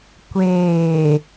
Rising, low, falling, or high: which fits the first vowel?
low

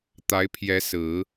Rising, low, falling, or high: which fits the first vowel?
rising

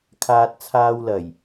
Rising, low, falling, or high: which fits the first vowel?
low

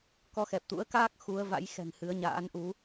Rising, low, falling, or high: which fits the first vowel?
rising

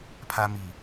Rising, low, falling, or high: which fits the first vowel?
high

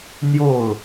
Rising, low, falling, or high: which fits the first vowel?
falling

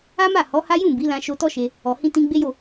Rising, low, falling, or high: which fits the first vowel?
high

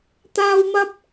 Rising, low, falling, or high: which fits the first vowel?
high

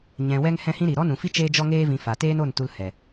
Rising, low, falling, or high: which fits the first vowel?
low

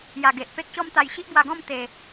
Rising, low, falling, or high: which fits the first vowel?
low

